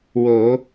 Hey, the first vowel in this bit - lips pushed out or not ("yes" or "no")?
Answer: yes